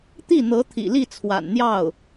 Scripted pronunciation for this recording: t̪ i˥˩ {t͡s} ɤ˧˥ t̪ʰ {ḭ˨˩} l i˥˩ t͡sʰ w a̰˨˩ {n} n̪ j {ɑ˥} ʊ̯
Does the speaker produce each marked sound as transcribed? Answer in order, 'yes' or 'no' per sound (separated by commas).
no, yes, yes, no